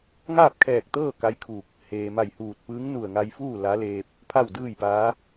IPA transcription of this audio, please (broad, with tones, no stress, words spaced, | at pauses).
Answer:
ŋaː˥˨p̚kʰɛː˧˩k̚t̪ɤː˥˨ ka˧˥jkʰuː˧˩k̚ | heː˩ma˧˩jhuː˧˩t̚ pɯː˧˥ŋnu˧˩ə̯ŋa˧jfuː˥˨ la˧˥leː˧p̚ | pʰa˥˨wdɯː˥˨jpaː˧˥